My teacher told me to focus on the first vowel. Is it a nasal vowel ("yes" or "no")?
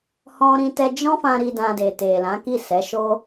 yes